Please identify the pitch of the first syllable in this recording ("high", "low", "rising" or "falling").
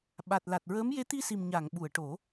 low